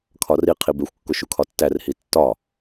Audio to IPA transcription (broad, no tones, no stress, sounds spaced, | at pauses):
kʰ ɒ r i qʰ i b e xʷ kː o ʃ u kʰ ɒ tː æ r h i tː ɒ